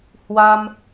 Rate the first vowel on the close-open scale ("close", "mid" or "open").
open